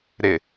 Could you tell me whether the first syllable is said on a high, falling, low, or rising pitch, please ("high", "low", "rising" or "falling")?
low